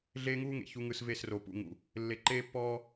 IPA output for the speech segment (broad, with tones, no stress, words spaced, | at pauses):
ɮeː˦ŋuː˦ŋḛ˨ çu˨ŋɯ˨s ve˦˨sro˨pṵ˦˨ŋṵ˨ | lːe˨ǃeː˦pːɔː˦